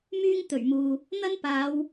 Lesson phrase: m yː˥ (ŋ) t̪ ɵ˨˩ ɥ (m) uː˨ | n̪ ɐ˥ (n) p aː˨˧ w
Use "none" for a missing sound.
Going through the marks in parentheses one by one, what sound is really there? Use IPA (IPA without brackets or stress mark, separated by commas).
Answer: ŋ, m, n